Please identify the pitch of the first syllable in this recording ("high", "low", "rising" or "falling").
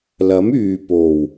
rising